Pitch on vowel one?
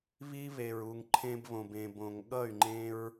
high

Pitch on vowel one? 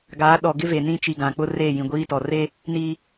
rising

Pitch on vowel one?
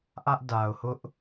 high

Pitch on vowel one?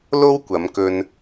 high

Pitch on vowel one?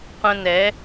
high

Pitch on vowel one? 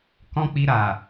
high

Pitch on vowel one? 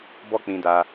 high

